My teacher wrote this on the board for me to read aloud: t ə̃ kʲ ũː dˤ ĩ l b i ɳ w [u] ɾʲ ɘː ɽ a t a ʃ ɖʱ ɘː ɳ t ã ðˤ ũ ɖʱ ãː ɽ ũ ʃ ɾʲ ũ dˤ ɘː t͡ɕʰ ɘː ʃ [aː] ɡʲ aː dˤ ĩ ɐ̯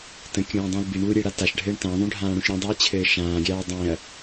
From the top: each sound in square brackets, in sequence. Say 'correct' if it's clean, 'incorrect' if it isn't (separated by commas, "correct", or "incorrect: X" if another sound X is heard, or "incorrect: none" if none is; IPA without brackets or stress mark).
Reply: correct, incorrect: ãː